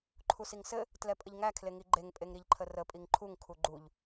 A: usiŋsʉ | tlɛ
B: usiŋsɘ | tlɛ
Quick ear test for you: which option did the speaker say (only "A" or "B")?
B